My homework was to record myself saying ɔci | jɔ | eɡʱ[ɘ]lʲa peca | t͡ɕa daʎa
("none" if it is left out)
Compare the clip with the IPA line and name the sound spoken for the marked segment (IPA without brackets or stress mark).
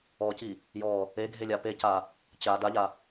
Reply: e